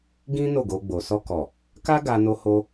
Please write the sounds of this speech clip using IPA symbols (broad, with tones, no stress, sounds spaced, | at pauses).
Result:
ɡ ĩ˦ n o˦˨ ɡ o˧ ɡ͡b o˨ s ɔ˧ k ɔ˨ | k a˦ ɡ a˧ n o˧ h o˧